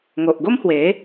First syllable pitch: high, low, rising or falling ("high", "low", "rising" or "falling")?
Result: low